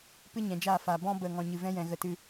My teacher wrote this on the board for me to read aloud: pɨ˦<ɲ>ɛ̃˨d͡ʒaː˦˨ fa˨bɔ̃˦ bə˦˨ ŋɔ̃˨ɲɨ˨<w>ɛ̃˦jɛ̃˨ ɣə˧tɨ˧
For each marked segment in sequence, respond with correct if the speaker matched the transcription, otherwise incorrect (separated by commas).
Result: correct, incorrect